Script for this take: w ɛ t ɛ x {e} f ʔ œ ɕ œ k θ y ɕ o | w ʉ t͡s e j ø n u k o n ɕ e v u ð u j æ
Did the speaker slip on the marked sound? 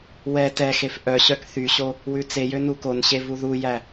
no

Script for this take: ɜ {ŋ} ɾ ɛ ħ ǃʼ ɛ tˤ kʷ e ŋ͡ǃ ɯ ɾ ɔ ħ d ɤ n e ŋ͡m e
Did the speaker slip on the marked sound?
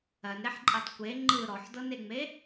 yes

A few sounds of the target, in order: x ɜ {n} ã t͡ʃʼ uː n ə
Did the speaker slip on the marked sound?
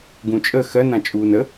no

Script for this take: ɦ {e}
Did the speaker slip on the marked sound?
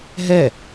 yes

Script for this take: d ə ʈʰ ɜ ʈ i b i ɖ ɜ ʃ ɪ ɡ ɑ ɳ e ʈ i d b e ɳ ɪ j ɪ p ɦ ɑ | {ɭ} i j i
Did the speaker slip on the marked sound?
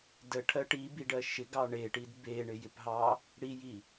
yes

